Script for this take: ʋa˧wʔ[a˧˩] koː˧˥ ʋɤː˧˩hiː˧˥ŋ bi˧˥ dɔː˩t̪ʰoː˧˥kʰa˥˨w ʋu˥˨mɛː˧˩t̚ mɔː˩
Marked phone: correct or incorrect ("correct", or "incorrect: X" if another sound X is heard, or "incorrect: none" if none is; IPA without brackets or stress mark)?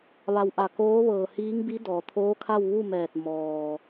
correct